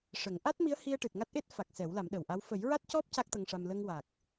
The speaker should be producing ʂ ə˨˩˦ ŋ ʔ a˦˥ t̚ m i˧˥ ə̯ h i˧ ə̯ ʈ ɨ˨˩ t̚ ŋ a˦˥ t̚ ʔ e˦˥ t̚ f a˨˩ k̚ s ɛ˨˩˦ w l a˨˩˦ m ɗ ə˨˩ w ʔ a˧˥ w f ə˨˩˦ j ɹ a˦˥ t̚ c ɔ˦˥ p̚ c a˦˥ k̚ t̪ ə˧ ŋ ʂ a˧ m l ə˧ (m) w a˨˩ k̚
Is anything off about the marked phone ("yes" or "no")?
yes